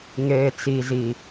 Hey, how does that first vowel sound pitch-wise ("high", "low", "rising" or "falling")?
low